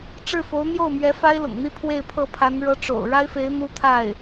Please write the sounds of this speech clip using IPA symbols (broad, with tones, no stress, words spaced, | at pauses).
ʈ͡ʂɻ̩˥˩fo˧˥ʊ̯ n̪jo˥˩ʊ̯mɥɛ˧˥ fa˥ɪ̯lʊ̰˨˩ŋn̪i˥˧ pʰwe˥˧ɪ̯pʰɤ˥˩pʰa˧˥n ɻɤ˧˥ʈ͡ʂo̰˨˩ʊ̯ ɻa˥ɪ̯fe˧˥ɪ̯ n̪u˥t̪ʰa˥˩ɪ̯